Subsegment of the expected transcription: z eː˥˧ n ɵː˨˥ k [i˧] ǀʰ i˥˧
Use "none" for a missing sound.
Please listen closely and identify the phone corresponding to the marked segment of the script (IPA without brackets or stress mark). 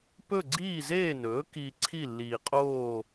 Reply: i˧